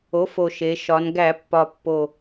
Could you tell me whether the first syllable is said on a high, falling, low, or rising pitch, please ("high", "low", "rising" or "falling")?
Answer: rising